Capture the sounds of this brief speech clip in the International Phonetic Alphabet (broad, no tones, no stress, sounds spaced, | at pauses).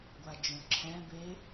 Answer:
ɡʷ a d͡ʒ õ ǁʰ ɛ̃ b e